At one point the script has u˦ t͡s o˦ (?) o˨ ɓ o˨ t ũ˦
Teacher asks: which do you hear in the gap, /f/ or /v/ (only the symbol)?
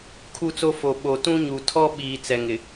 f